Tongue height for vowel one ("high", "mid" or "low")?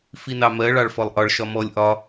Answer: high